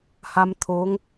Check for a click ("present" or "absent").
absent